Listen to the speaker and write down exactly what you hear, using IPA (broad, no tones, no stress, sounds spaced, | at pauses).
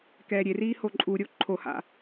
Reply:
k ɛː ɾʲ e r iː h o ǃʼ u ɾʲ o ǃʰ o h a̰